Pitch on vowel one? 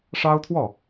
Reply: high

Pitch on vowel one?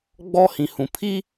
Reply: high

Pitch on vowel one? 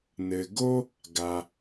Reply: low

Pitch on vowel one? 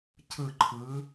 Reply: falling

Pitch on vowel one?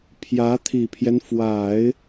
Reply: rising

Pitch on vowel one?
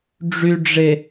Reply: low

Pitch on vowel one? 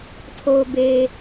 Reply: low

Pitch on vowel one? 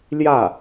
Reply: falling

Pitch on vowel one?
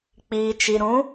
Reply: low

